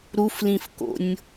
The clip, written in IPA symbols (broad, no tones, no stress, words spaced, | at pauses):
ɾuflĩfko̰nʲ